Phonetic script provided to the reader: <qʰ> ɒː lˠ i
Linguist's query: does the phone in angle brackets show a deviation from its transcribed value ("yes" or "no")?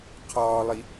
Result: no